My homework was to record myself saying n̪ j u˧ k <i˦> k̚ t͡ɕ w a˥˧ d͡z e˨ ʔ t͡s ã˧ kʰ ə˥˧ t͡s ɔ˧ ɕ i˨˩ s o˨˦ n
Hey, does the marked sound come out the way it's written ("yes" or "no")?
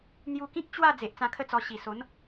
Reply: no